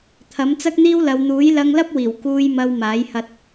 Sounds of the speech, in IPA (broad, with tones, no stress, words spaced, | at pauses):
t̪ʰɐ˨˥mt͡sɐ˥k̚n̪iː˥wlɐ˨˧w n̪uː˨˥jlɐ˧ŋlɐ˥p̚ wiː˨˩w kuː˧j mɐ˧wmaː˨˥jhɐ˧t̚